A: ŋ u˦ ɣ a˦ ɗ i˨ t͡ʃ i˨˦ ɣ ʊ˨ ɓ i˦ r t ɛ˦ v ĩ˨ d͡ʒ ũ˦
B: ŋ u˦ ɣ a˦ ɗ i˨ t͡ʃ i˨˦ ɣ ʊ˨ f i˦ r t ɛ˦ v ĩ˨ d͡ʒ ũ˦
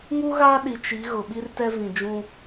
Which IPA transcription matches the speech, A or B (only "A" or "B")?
A